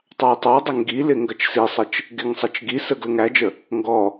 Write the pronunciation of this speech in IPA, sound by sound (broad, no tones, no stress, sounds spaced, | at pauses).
tˤ ɑ j tˤ ɑ dˤ ə ŋ ɡ i l ɪ ŋ ɡ ʌ t͡ʃ s i sˤ ə t͡ʃ | ɡ ɪ ŋ sˤ ʌ t͡ʃ ɡ i s ə ɡ l ə ŋ æ d͡ʒ ə | ŋ ɡ ɔ